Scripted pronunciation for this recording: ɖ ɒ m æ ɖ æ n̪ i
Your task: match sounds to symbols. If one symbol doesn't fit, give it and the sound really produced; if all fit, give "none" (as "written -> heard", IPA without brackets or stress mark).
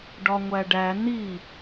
m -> ŋʷ